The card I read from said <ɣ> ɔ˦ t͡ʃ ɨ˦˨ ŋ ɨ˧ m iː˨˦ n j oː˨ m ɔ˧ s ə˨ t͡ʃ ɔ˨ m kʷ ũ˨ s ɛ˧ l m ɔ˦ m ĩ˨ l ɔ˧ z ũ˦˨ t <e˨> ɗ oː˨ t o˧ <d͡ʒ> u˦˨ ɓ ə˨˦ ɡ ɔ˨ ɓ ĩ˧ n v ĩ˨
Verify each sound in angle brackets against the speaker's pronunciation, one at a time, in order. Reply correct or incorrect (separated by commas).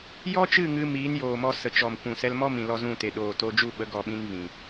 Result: incorrect, correct, correct